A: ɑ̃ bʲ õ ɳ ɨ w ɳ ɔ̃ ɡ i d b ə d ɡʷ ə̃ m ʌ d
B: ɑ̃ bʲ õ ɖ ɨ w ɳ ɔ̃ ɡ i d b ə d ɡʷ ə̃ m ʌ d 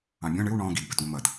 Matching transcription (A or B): A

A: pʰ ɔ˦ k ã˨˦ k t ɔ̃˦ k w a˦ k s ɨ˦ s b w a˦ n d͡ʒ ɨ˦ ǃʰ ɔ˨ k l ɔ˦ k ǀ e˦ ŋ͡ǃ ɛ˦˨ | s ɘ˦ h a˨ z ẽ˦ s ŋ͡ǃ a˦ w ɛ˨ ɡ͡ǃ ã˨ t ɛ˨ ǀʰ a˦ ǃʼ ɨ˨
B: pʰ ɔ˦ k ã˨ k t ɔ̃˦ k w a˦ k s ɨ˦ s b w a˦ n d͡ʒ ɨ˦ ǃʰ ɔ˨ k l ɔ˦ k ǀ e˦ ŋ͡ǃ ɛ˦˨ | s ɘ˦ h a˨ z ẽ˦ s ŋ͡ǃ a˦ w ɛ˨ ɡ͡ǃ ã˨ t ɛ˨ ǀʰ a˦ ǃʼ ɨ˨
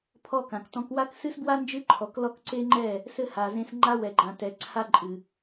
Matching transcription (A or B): B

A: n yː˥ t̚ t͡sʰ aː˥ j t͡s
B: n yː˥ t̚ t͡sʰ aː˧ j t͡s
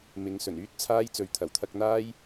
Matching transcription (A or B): A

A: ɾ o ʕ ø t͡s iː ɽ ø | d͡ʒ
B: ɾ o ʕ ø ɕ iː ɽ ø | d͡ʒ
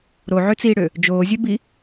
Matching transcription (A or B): A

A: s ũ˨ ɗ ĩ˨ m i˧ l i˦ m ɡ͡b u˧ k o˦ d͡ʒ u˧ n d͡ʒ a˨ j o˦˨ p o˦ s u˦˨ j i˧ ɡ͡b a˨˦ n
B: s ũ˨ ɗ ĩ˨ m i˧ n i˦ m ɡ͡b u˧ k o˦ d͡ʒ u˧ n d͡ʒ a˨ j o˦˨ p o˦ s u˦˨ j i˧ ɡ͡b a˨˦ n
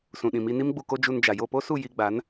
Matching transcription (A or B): B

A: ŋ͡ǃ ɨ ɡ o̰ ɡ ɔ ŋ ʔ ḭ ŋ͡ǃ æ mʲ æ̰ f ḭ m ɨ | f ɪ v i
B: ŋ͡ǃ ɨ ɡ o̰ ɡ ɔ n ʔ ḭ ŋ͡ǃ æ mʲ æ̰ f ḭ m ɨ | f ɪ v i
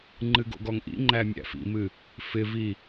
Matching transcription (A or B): A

